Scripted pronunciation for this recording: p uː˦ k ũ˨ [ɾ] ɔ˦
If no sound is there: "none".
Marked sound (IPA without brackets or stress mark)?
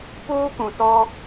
t